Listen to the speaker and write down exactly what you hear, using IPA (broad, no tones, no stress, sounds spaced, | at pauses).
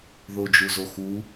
ð o d͡ʒ u z o x u